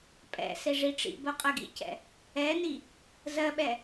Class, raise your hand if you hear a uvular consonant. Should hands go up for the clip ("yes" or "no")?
yes